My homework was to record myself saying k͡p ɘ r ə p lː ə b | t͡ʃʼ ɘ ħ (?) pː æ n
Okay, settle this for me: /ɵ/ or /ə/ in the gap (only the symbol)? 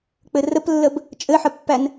ə